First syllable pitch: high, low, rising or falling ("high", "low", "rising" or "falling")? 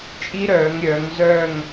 high